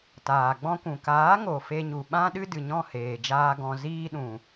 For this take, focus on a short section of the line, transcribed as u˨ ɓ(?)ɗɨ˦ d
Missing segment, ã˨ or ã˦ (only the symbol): ã˦